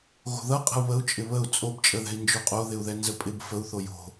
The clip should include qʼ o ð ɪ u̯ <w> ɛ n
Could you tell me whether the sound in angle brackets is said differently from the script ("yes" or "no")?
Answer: yes